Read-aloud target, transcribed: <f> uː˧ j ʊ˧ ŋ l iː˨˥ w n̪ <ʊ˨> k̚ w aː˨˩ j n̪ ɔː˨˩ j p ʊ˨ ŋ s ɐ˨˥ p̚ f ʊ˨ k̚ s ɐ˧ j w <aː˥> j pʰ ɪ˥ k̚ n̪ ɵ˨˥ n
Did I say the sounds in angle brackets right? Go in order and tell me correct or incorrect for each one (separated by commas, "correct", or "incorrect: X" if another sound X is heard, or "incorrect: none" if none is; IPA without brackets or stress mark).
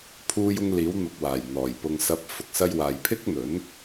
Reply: incorrect: pʰ, correct, incorrect: aː˨